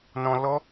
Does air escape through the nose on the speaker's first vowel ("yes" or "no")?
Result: yes